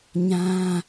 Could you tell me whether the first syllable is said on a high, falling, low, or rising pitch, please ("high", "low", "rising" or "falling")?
high